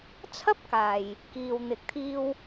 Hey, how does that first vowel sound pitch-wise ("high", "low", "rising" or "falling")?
high